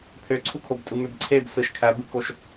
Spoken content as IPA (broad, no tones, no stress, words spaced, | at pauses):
pʰøǀʰukʰobtʼɯ møbǀʰeb sɯʃ kʰæbɯkoʃ